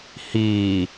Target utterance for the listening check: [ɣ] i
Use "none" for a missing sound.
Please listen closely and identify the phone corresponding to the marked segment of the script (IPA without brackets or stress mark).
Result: h